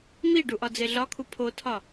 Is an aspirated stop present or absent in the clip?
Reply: present